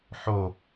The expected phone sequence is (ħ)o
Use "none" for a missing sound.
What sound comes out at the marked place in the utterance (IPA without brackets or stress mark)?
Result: ħ